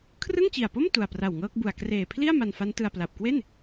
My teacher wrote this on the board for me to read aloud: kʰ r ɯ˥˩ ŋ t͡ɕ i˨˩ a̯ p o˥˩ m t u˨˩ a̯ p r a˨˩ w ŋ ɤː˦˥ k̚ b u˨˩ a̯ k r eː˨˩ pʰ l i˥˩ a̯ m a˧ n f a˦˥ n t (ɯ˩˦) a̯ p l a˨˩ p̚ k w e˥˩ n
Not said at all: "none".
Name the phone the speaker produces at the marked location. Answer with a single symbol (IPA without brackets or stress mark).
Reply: ɯ˧